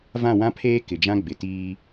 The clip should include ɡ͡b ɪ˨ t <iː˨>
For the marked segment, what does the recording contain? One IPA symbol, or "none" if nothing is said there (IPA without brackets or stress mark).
iː˦